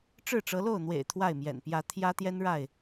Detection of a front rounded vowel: absent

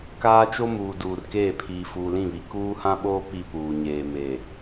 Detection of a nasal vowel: present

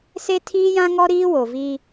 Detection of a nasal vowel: present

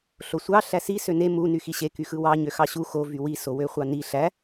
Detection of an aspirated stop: absent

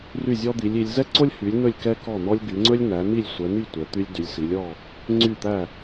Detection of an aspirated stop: absent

